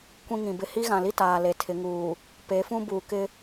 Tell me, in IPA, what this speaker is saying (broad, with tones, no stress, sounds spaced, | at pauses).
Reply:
kʷ ĩ˦ ŋ ĩ˨ b ɪ˦ h i˦ ɣ ã˨ l i˦ t aː˨ l e˨ tʰ ɪ˨˦ ŋ uː˨ | p e˨˦ f ũ˦ b uː˨ k ɪ˦